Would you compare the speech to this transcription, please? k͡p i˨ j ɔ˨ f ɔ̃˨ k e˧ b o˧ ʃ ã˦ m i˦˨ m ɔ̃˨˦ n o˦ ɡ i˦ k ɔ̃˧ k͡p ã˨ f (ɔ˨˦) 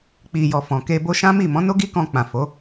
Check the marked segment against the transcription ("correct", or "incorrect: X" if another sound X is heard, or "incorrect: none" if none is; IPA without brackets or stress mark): incorrect: o˨˦